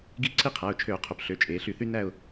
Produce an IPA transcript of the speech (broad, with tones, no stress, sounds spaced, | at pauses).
ɡ i˦˨ ǀʰ i˦˨ qʰ æ˩˧˩ ʊ̯ t͡ʃʰ ø˧˩˧ ʊ̯ qʰ o˩˧ p ɬ ø˩˧˩ t͡ʃʼ eː˩˧ ɬ y˧˩˧ θ y˦ n æ˦˨ ʊ̯